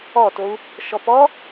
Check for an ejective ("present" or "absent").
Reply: absent